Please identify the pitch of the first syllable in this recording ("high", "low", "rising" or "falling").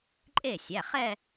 falling